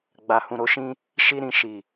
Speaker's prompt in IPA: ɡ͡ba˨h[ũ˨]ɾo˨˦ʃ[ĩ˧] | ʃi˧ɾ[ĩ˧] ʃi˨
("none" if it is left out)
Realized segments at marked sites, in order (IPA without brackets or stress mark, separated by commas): ũ˨, ĩ˧, ĩ˨